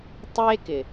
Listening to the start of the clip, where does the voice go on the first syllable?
high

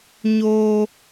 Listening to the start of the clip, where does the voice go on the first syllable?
high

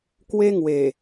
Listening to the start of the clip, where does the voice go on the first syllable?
high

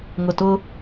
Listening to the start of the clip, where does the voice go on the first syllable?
low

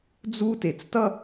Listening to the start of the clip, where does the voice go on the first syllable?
high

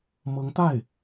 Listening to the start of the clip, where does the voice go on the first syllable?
rising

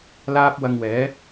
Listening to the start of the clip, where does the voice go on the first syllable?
high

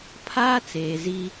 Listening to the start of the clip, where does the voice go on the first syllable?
high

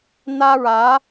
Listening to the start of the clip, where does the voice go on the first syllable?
high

